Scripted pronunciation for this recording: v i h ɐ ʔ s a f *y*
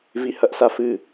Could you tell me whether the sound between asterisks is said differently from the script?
yes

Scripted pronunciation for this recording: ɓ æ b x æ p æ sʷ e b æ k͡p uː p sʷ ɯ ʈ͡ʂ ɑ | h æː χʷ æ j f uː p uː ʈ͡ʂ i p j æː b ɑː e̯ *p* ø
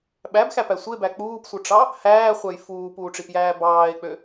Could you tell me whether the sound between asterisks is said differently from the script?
yes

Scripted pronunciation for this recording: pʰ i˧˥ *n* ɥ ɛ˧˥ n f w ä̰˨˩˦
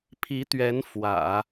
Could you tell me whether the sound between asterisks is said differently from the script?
yes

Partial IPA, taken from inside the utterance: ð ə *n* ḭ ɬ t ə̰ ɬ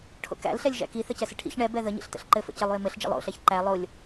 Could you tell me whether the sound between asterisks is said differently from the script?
yes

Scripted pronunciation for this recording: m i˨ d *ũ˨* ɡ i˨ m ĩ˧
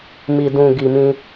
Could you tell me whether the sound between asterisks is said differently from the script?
no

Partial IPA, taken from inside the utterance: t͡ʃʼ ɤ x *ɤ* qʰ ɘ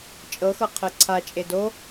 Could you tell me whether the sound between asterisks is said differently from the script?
no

